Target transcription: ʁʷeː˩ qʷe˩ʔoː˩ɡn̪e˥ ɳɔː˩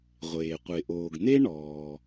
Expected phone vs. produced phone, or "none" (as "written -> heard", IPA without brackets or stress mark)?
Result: none